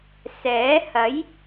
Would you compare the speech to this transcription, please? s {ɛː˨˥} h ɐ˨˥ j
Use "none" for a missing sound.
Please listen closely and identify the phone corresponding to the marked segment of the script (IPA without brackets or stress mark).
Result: ɛː˨˥